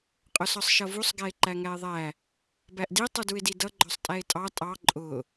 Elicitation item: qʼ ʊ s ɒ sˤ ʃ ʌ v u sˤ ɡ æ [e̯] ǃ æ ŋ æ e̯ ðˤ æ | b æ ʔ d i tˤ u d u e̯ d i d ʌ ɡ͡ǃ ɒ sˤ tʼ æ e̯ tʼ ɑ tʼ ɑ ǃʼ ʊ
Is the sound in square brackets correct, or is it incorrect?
correct